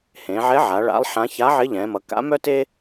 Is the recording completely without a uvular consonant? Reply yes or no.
yes